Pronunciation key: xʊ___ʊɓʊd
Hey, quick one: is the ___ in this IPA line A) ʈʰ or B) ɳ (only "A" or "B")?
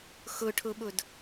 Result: A